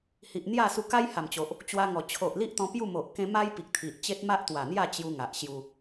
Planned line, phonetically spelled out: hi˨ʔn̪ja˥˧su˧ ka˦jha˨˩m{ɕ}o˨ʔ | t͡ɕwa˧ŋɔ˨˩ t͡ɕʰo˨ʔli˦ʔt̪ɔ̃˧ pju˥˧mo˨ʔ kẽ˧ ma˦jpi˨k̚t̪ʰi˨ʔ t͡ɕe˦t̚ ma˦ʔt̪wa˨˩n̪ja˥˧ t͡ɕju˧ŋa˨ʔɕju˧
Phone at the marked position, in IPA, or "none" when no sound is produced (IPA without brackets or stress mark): t͡ɕ